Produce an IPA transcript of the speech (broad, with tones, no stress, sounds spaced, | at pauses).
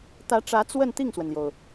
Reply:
t̪ ä˧˥ ʈ͡ʂ ä˧˥ t͡s w ə˥˧ n t̪ i˥˩ ŋ s w ə˩ n l j o˩ ʊ̯